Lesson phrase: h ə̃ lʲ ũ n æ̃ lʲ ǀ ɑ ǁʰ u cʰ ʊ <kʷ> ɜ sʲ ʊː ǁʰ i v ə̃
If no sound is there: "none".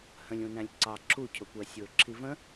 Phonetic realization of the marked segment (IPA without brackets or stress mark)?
kʷ